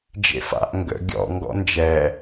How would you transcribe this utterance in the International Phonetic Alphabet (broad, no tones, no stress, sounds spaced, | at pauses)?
d͡ʒ ḛ f a̰ ʔ ŋ ɡ ə̰ ɡʲ ɔ̰ ŋ ɡ ɔ̰ n d͡ʒ ɛ